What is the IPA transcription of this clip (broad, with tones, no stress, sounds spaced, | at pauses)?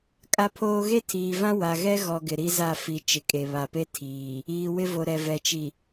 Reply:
kʼ a˦ pʰ oː˦ ɣ e˦ tʰ iː˨ v ã˦ w a˨ ɣ ɛ˦ ɣ ɔ˨ ɡ ɪ˨ ɾ i˦ z a˦˨ f i˨ t͡ʃ ɪ˨ kʼ e˨ β a˨ p e˦ tʰ iː˨ | iː˨ w ɪ˦ v o˨ ɾ ɛ˨ v ɛ˨ t͡ʃ i˨